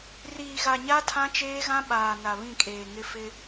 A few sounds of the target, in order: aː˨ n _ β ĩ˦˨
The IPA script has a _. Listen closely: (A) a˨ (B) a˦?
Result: A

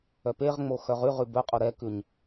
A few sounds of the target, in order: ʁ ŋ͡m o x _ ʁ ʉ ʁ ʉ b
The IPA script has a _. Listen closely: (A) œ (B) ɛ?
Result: A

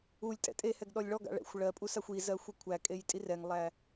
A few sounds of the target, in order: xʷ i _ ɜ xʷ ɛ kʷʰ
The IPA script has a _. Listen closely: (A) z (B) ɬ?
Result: A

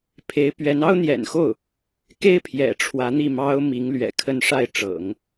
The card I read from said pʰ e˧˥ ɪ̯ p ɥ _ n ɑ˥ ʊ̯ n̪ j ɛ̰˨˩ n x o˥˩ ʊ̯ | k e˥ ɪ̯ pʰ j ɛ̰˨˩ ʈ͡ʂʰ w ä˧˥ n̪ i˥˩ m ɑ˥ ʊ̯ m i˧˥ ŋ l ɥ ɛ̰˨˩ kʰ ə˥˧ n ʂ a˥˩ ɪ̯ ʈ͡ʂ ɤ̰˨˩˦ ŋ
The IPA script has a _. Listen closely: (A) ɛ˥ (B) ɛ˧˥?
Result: B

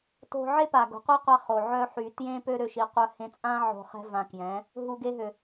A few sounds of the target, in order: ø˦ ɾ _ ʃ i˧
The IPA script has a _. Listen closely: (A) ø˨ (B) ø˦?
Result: B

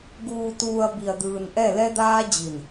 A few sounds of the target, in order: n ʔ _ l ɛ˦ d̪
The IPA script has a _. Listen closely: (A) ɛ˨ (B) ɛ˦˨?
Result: B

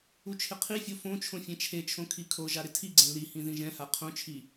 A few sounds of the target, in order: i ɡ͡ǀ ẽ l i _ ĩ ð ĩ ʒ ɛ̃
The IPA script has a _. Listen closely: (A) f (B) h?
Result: B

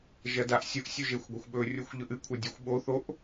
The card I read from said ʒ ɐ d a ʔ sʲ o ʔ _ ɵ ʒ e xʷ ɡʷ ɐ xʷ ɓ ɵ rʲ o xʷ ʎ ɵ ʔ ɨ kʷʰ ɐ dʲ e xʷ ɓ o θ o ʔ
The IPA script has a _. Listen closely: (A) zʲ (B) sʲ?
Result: B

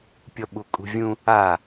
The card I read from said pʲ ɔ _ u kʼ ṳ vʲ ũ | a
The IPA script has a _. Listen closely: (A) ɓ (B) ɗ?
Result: A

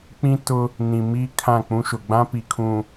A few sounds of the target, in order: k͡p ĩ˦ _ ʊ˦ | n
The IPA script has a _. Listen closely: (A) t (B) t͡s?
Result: A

